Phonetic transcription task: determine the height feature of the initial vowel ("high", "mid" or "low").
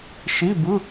high